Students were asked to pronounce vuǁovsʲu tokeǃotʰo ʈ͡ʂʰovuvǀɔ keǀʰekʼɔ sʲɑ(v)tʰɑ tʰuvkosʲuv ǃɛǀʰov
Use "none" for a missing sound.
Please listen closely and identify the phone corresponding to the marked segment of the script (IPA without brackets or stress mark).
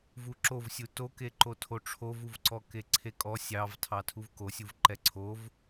v